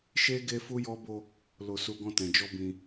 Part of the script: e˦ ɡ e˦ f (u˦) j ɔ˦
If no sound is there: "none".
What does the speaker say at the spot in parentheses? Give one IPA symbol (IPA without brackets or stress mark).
u˦